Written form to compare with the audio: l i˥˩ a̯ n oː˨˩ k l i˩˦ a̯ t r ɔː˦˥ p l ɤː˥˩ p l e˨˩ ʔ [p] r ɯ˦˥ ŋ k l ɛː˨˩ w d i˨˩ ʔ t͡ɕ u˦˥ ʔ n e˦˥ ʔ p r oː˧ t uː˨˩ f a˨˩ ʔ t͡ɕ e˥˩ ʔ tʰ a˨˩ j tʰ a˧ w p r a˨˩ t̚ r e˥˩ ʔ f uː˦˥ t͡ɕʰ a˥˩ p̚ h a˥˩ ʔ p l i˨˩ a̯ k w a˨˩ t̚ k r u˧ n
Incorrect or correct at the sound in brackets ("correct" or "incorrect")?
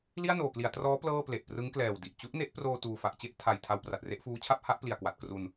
correct